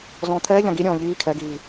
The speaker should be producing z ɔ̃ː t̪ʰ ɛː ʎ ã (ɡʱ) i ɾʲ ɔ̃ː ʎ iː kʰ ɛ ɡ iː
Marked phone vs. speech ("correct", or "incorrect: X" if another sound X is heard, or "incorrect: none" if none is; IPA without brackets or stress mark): incorrect: ɡ